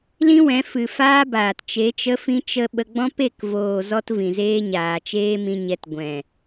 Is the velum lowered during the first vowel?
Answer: yes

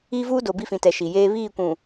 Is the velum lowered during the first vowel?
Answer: no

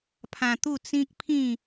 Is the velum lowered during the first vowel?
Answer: yes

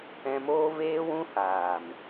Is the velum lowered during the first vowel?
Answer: yes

